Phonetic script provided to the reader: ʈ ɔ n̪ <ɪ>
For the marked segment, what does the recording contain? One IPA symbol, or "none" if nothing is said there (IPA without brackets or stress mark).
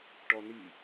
i